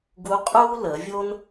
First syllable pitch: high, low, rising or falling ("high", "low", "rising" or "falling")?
rising